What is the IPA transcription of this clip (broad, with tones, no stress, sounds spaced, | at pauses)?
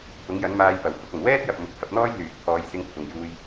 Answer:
t̪ʰ ʊ˨˥ ŋ j ɐ˨˥ n m aː˧ j p ɐ˨˩ w h ʊ˧ k̚ ɐ˨˩ n w ɛː˥ t̚ j ɐ˨ p̚ m ʊ˨˥ k̚ h ɐ˧ p̚ n̪ ɔː˥ j l yː˨ k̚ pʰ ɔː˨˧ j s ɪ˧ ŋ pʰ ʊ˨ ŋ j uː˧ j